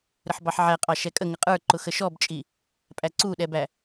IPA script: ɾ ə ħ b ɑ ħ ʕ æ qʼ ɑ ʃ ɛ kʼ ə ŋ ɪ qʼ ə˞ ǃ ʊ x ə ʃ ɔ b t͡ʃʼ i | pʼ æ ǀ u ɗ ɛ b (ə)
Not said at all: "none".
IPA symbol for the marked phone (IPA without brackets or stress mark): æ